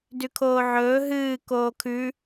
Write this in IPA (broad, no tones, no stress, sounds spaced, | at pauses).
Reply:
d ʉ kʰ oː ʕ ɵː ɦ ɨː k oː kʰ ʉ